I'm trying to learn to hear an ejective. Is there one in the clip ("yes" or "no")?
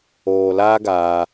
no